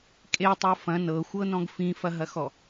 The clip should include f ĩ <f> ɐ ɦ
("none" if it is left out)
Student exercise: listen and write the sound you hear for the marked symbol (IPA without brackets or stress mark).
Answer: f